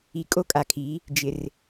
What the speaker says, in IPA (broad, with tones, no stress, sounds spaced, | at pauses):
i˨ kʼ o˦ kʼ a˨ kʰ i˨˦ | d͡ʒ ɪ˨ r